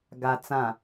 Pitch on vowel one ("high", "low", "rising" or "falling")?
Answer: low